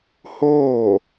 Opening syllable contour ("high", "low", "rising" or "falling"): falling